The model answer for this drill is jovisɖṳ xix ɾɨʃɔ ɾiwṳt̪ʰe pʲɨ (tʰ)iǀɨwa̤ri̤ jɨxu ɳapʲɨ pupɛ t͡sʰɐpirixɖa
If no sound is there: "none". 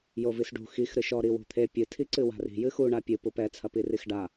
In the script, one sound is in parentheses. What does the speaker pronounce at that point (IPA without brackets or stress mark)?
tʰ